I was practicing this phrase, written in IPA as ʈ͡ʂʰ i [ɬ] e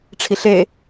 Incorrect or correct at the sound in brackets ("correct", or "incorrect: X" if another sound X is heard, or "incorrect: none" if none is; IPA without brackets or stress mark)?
correct